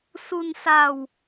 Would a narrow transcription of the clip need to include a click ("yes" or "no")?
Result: no